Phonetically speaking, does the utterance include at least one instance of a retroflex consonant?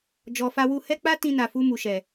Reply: no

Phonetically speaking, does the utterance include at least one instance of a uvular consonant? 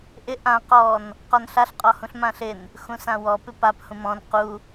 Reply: yes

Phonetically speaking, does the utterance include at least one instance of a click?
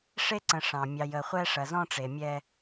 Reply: yes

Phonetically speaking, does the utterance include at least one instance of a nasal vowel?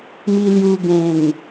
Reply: yes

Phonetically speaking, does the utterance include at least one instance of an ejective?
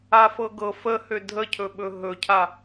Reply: no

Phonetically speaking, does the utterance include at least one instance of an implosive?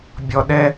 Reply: yes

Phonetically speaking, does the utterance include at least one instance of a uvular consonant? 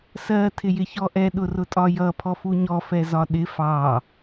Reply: no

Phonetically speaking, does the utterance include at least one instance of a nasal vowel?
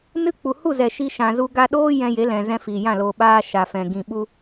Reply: yes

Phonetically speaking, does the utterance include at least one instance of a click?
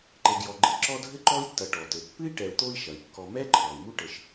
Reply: yes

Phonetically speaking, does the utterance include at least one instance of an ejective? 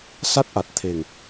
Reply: no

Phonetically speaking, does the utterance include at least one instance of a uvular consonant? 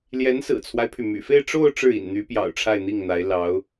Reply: no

